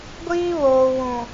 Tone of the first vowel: high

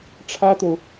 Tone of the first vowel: high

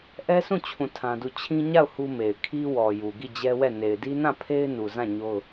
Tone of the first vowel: high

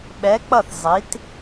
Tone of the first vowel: rising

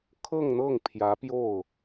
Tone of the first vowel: falling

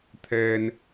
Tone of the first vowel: low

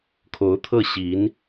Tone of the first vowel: rising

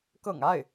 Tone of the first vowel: low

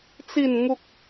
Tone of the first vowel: falling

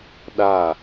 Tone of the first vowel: falling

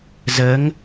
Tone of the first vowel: rising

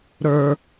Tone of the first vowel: low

